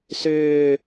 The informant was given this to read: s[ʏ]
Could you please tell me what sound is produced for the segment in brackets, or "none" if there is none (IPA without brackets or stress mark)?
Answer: ʏː